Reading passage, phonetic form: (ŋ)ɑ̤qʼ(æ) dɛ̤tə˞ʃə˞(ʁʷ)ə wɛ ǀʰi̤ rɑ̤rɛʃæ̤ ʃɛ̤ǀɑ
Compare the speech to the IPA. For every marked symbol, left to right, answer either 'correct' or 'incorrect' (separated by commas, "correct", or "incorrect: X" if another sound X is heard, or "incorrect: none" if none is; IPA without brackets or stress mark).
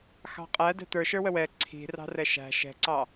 incorrect: x, correct, incorrect: w